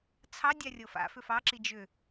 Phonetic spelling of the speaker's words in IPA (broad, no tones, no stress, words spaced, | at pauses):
t͡sʰɑ dʲarʲɤfa̰fʏf ɑǁi d͡ʒʏ